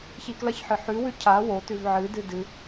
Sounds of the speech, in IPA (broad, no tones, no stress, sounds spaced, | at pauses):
ç i k l ɐ ç ħ ɨ ħ ʉ w ʉ cʰ a w o t ʉ v ʕ ɨ d ɨ d ɨ